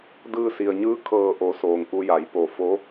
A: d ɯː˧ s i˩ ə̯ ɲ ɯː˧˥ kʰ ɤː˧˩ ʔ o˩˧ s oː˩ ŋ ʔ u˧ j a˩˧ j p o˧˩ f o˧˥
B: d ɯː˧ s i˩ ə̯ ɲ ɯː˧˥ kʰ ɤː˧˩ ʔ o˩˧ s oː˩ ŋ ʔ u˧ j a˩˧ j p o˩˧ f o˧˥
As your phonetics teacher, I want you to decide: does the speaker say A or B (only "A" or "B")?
A